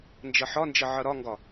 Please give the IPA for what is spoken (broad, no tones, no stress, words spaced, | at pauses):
nd͡ʒʌħɒnd͡ʒʌ ʕʌɾɒŋɡɒ